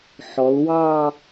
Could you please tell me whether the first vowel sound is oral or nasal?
oral